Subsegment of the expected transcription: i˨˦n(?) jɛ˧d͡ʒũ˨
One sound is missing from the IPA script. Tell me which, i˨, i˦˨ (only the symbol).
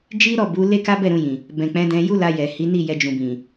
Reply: i˦˨